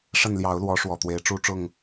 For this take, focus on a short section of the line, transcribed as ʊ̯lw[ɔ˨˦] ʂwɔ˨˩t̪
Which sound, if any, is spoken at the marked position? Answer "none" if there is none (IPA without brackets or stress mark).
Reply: ɔ˨˦